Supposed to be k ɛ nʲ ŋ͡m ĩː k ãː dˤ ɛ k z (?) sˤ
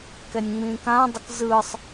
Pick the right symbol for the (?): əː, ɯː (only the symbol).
ɯː